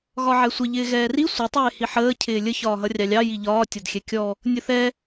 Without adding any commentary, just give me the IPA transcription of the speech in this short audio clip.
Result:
ɣ ɒ ʕ ɛ sʷ ə ʎ ɪː ɣ ɛː r i sʷ ɪ tˤ ɜ e̯ h i ħ əː cʰ ɪː lʲ ə ç ɒː ɦ ʌ rʲ ɑ lʲ ɑ j i ʎ ɒː tʲ ɒ d xʲ ɛ kʲ ɔ | nʲ ə θ ɛ

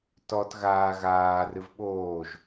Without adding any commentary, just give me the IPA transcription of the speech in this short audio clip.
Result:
t ɔ t ɣ aː ɣ aː r ɨ v ɓ oː ʒ

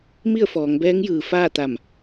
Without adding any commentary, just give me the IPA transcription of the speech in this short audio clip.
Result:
m i˥˨ ə̯ f ɔː˩˧ ŋ b ɛː˧˥ ŋ j ɯː˩ f aː˥˨ t̪ a˧˩ m

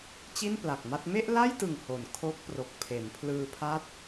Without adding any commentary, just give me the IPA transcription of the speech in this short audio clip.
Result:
t͡ɕ i˥˩ n p l a˨˩ k̚ m a˥˩ t̚ m e˥˩ ʔ l a˥˩ j t ɯ˨˩ ŋ h o˨˩ n kʰ o˦˥ k̚ p r o˨˩ k̚ pʰ e˩˦ n pʰ l ɯː˧ pʰ a˦˥ t̚

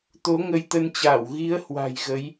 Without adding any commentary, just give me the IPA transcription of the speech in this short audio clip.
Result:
t̪ o˨˦ ŋ ə˧ j t̪ ə˧ n t͡ɕ aː˧˩ w ɣ i˨˦ ə̯ h w a̤˨˩ j ɣ ə˨˦ j

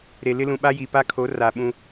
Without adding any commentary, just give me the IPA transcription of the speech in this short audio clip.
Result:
ɾ e˨ l ɪ˦ l ũ˨ ɓ a˦ j i˨ p a˦ kʰ o˨˦ r a˨ ɓ ũ˦

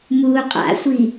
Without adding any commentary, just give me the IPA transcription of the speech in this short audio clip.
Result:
m uː qʼ a̰ sʷ i

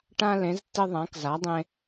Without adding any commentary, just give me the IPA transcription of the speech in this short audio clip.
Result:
ʈ ã˧ l ẽ˩˧ z tː ɪ˧ ðˤ ã˩˧ k z a˩˧ dˤ ẽ˧

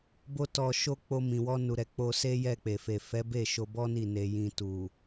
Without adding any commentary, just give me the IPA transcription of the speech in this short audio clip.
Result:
b o˧ t ɔ˨ ʃ o˧ k͡p o˧ m ĩ˨ w ɔ˧ n u˨ ɾ ɛ˨ k͡p o˧ s e˦ j ɛ˦˨ k͡p e˨ f e˨ f ɛ˨˦ b e˦˨ ʃ o˧ b ɔ˦ n i˦˨ n e˧ j ĩ˧ t u˨

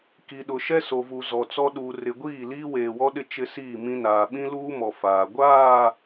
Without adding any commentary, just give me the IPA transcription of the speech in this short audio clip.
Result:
k i˨ ɗ ʊ˨ ʃ ɛ˦ s o˨ v u˨ z ɔ˨ t͡s ɔ˦ ɗ uː˨ r ɪ˨ ɡʷ iː˦˨ l iː˦ w eː˨ w ɔ˦ ɗ ɪ˦ t͡ʃ ɪ˦ s iː˦˨ m ĩ˦ n aː˨ ɓ ĩ˦ l uː˦ m ɔ˨ f aː˨ ɡʷ aː˦˨

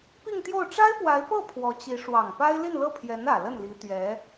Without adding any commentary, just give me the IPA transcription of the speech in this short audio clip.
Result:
p i˥˧ ŋ t̪ j o˥˩ ʊ̯ ʈ͡ʂ a˥ ɪ̯ p w a˧˥ ɪ̯ p ɤ˥˩ pʰ w ɔ˧˥ t͡ɕ i˧˥ ʂ w ɑ˨˩ ŋ p a˥ ɪ̯ l i˥˧ n l ɤ˥˩ pʰ j ɛ˧˥ n ä˨˩ l ə˥˩ n l i˧˥ t̪ ɥ ɛ˧˥

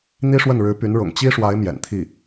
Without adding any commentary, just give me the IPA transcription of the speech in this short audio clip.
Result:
n̪ i˥ ʂ w ə˥˩ n ɻ ɻ̩˧˥ p y˧˥ n ɻ ʊ̰˨˩ ŋ t͡ɕ i˥ ʂ w a˧˥ ɪ̯ m j ɛ̰˨˩ n t̪ʰ i˥˩

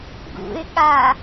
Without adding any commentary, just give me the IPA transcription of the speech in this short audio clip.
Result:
ɡ ṵ ɪ̯ ɠ a

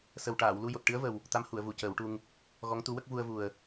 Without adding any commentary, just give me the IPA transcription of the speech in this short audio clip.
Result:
s ə˨˩ w ʈ aː˨˩˨ w l u˧ j o˨˩ t̚ ʈ ɨ˧˥ ə̯ v ə˨˩ w | t̪ a˧˥ m h u˨˩˨ ə̯ v u˨˩ c əː˨˩˦ w ʈ u˧ ŋ | ɣ ɔ˧˥ ŋ t̪ u˧˥ w ə˦˥ k̚ v u˧ ə̯ v u˨˩ ə̯

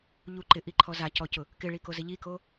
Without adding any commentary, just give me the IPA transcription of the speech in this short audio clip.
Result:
ʎ u ǃ ɪ ʔ i ǃʰ ɔ z a c ɔ c ʊ | k ɪ ɭ i k o z ɪ ʎ i k o

